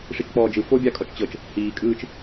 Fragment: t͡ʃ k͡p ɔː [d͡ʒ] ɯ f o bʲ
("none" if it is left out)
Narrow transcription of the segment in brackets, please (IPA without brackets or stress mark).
d͡ʒ